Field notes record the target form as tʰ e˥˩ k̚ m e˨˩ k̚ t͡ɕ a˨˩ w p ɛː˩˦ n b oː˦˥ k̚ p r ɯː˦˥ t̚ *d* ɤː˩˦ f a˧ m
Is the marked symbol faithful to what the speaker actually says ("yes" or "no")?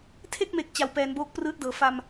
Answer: yes